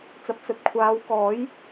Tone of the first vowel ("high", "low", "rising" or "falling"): low